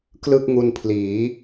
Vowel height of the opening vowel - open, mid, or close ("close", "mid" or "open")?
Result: close